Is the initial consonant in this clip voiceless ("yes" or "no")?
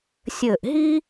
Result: yes